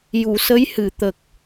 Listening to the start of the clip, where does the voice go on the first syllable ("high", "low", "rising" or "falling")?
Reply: low